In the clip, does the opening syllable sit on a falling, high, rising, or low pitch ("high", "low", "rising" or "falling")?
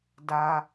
high